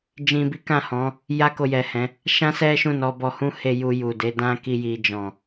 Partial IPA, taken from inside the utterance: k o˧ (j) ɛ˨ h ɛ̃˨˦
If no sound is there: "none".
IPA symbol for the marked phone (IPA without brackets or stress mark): j